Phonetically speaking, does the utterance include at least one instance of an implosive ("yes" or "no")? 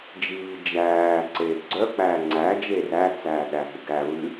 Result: yes